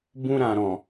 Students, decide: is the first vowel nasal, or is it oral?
nasal